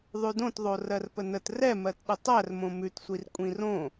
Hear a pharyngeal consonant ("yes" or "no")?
no